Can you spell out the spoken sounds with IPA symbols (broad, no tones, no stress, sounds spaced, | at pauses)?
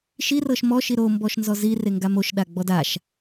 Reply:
ʃ i r ɤ ʃ m ɔ ʃ i ɾ o m b ɔ ʃ n z ɔ z i r e ŋ ɡ a m o ʃ ɗ a ɡ͡b ɔ d a ʃ